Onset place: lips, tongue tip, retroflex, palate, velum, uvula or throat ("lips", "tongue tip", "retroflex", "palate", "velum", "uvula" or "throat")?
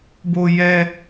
lips